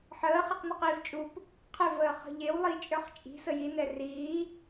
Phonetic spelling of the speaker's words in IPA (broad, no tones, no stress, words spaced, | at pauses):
ħəː χeqniqiːvt͡ʃʼup | qʰɛvəː χə̤ʎewlˠi t͡ʃʼə˞χt͡ʃʼi̤ səjinɛ riː